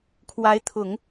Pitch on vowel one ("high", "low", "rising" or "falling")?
rising